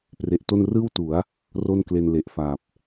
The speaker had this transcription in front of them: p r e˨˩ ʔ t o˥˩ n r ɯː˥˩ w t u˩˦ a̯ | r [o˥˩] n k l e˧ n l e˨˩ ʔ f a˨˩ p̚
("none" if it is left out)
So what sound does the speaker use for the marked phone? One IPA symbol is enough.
o˥˩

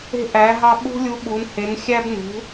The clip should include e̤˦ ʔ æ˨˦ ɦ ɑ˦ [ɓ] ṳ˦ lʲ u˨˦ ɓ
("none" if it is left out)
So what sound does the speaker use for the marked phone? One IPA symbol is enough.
ɓ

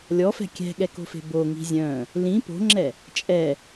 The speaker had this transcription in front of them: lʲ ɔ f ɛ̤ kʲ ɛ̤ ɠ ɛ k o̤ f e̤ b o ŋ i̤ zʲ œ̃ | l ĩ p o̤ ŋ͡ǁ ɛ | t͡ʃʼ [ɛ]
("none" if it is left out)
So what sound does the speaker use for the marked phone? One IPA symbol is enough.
ɛ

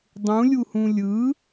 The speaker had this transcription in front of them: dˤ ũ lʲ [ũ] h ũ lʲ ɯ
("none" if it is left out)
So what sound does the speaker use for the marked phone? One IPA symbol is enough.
u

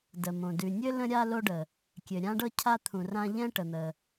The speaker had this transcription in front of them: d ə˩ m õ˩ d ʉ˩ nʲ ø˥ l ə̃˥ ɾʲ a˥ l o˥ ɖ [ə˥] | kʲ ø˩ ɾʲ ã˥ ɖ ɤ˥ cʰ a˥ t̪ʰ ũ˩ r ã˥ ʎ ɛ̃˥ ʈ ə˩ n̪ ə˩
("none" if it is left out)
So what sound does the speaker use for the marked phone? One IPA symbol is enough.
ə˩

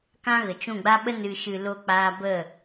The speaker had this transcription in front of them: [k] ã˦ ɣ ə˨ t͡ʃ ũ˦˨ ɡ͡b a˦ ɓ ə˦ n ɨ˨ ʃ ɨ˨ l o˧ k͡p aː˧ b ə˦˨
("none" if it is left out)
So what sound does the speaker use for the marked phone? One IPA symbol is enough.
k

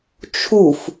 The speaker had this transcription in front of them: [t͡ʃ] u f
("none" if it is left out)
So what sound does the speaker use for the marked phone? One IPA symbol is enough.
t͡ʃʰ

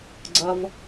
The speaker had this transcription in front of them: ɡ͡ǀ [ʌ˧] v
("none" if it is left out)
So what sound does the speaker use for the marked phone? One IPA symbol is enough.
ʌ˧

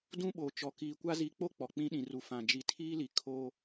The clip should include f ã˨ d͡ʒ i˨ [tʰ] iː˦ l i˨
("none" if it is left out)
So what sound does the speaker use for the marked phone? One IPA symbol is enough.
tʰ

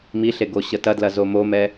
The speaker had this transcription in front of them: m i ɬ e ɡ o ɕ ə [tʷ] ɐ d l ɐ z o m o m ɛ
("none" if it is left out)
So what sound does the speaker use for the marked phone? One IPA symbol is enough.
t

